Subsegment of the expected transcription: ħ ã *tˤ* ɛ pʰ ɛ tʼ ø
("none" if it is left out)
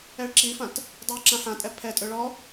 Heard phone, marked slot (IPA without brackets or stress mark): tʼ